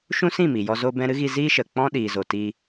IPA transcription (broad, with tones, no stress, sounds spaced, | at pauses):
ʃ ũ˦ s ĩ˦˨ m i˨ j ɔ˧ z o˧ b ɛ̃˧ ɾ ɨ˦ ɣ i˧ z iː˦ ʃ ə˨ k͡p ɔ̃˦ ɗ iː˨ z o˨ t i˧